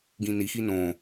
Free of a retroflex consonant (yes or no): yes